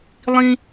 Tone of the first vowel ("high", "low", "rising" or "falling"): high